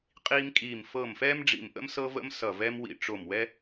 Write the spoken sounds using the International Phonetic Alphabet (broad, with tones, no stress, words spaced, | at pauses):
qʼiː˦mkʼiː˧˩m fɤ˧˩mfɛː˦mɖ͡ʐḭ˧˩mʔə̰˦m sɤ˦və̰˦m sʌ˧˩vɛ˦m wḭ˧˩ʈ͡ʂo˧˩mwɛ˦